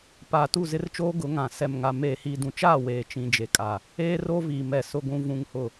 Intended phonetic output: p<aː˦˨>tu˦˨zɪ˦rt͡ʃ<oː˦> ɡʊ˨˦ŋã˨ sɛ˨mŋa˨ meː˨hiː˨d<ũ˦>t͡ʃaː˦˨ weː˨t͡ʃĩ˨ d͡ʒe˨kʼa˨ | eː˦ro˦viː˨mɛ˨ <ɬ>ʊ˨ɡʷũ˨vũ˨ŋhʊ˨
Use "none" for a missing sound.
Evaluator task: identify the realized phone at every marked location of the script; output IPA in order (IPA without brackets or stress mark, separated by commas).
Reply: aː˨, oː˦, ũ˨, s